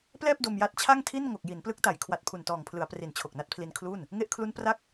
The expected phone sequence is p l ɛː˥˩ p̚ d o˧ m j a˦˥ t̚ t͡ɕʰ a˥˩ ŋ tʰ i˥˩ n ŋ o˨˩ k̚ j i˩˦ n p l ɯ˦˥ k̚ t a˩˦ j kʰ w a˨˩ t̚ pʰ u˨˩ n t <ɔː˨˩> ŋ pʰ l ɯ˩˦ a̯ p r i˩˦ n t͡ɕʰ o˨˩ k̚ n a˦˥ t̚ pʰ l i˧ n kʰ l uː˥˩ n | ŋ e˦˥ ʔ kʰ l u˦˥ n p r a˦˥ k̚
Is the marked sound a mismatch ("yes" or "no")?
no